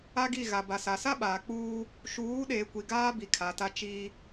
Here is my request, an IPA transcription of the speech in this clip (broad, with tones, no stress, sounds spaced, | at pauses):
a˦ ɡ i˦˨ ɣ a˨ b a˨ s a˨ s a˦ ɓ aː˨ k͡p uː˦ | ʃ uː˨˦ ɗ eː˨ kʷ i˨ ɡ aː˦ b i˨ kʰ a˨ t a˦ t͡ʃ iː˦